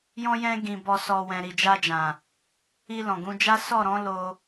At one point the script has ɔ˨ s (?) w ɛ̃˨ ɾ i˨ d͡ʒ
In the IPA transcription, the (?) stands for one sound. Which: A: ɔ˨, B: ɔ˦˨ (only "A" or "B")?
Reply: A